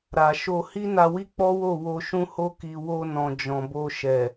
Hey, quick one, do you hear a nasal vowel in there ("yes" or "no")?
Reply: yes